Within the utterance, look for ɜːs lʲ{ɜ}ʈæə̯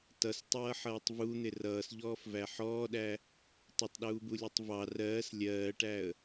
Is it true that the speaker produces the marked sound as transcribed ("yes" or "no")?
no